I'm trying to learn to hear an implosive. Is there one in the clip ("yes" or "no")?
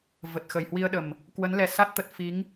yes